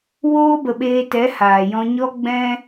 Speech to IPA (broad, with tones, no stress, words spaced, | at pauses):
woː˧bə˨ ɓeː˧tɛ˨˦haː˨ jɔ̃˧ɲɔ˦ ɡ͡bɛ̃˧